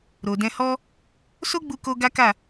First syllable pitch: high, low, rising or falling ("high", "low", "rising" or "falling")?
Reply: low